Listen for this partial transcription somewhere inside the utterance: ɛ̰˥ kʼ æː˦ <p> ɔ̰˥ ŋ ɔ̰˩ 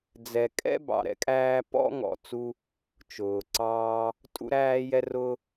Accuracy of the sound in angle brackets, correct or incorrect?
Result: correct